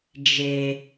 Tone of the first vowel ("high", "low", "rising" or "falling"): low